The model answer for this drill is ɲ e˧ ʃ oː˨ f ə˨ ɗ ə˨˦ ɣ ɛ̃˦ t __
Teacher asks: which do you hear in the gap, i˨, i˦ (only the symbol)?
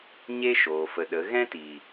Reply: i˨